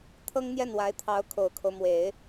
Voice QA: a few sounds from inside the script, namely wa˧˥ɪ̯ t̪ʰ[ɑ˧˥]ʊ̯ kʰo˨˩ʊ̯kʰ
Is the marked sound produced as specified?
yes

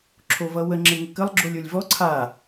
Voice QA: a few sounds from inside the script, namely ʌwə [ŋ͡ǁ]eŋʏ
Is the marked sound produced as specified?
yes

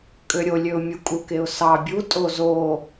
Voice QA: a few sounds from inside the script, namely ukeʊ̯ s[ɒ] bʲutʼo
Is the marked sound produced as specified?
no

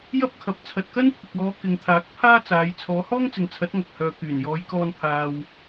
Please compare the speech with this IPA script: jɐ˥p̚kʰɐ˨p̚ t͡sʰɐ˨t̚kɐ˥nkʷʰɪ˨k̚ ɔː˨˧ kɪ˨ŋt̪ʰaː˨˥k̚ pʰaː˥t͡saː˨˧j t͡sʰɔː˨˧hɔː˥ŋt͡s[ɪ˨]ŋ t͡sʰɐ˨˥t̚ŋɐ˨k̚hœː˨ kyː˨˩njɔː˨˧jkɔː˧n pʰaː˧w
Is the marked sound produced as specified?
yes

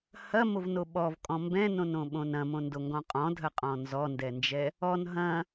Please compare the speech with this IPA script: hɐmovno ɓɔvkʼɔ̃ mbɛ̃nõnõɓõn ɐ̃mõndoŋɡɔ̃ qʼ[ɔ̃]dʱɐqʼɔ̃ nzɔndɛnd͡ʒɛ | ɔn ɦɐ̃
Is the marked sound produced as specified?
yes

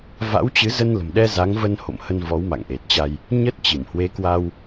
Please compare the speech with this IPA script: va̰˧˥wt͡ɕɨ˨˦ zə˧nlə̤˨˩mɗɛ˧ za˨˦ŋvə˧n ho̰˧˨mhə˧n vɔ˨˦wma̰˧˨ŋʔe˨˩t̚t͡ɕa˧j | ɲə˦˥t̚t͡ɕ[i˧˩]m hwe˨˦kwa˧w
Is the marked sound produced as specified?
yes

